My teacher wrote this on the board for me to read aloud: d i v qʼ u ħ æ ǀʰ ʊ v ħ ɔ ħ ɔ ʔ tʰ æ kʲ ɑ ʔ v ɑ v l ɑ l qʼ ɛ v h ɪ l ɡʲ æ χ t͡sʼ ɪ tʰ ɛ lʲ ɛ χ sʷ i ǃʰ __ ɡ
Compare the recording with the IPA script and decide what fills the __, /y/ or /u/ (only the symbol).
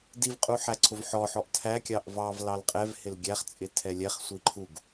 u